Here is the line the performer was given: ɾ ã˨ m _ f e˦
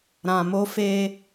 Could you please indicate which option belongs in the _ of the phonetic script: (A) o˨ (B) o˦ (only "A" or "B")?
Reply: B